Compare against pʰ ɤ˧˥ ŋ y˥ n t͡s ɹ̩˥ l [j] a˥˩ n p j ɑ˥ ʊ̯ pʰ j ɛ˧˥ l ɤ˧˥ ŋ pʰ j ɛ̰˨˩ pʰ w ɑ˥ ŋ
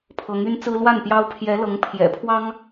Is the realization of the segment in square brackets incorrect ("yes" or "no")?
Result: yes